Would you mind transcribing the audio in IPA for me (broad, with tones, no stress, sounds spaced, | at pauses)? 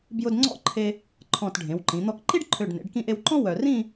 b j ʊ˧ d ŋ͡ǀ ɔ̰˥˧ ǃʰ e˧ | ǃʰ ɔ̃˧˩ t ɖʱ ẽ˩˧ w ǃ ĩ˩˧ n̪ ɔ˧ k ǃ i˥ ɖ ǃʰ ø˧˩ ɖ n ḛ˩˧ ɖ k ĩ˧ ʔ e˧ w ǃ ɔ̃˥ w œ˧ r ĩ˥˧